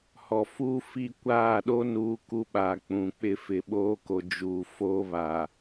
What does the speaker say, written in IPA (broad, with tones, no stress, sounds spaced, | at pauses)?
h ɔ˨ f uː˦ f i˦˨ kʷ aː˦˨ ɗ o˦ n uː˦ k u˦ ɓ a˨ k͡p ũ˨ k͡p ɪ˦˨ f ɪ˨ ɓ oː˦ k o˨ d͡ʒ uː˨ f oː˦ β a˨